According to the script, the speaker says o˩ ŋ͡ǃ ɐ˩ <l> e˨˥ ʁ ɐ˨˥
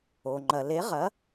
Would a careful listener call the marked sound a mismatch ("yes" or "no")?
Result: no